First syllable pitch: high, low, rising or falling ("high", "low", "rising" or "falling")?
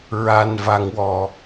low